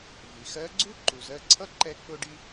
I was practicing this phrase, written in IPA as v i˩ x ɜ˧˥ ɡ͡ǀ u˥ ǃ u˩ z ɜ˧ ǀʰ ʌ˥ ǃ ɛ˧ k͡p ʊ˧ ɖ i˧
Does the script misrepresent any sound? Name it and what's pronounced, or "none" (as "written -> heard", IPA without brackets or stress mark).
none